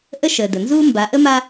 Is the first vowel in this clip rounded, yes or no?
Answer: no